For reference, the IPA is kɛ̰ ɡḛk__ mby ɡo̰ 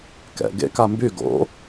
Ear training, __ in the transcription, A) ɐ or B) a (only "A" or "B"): B